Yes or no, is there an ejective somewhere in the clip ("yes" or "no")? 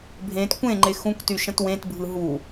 no